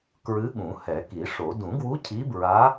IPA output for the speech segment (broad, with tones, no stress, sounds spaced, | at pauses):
k ɹ ɨ˧˥ ɠ ũ˨˩˦ h ɛ˨˩˦ k i˨˩˦ ʂ o˨˩˦ d ũ˨˩˦ ɡ w u˧˥ cʰ i˧˥ b ɹ a˧˥